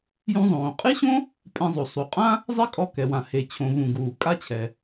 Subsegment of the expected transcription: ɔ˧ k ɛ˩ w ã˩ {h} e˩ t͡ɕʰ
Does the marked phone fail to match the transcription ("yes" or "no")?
no